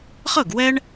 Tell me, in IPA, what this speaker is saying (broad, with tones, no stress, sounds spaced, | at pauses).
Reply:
χ ɤ˥˩ ɡ w ɛ˥ ɳ